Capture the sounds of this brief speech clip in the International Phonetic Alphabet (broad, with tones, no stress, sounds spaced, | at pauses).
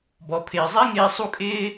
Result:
b ɔ˨ pʰ ɪː˨ zˤ ɛ˦ ŋ ɪː˦ sˤ u˦ kʼ ɪː˦